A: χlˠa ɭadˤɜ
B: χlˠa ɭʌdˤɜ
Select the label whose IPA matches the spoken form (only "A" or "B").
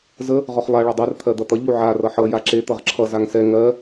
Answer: A